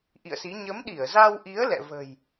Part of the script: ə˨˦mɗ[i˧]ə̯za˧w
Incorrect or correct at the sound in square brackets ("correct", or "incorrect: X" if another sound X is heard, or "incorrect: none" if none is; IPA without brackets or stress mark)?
incorrect: i˧˩